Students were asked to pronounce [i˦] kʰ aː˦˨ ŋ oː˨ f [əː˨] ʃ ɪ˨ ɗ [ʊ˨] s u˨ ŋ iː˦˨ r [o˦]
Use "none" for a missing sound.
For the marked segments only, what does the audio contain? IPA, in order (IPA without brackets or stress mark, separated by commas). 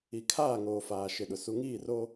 i˨, aː˨, ʊ˨, o˦